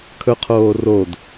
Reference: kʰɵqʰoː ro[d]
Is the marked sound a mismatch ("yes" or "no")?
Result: no